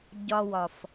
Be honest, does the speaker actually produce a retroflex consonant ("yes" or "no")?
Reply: no